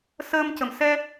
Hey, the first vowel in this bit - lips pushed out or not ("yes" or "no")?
no